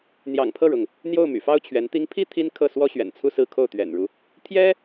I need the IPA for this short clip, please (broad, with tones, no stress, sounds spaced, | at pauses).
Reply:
n̪ j ɑ̰˨˩ ŋ pʰ ɤ˥˩ ɻ ʊ˩ ŋ | n̪ j o˥˩ ʊ̯ m y̰˨˩ f ɑ˥ ʊ̯ t͡ɕʰ ɥ ɛ˧˥ n t̪ i˧˥ ŋ pʰ i˥ t̪ʰ i˥ n kʰ ɤ˥˩ s w ɔ˥ ɕ ɥ ɛ̰˨˩ n t͡sʰ u˥˧ s ɹ̩˥˧ kʰ o˥˩ ʊ̯ t̪ ɥ ɛ̰˨˩ n ɻ u˦ | t̪ʰ j ɛ˥